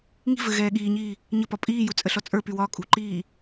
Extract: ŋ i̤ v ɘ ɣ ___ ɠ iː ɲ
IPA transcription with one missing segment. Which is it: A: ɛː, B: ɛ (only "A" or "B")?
A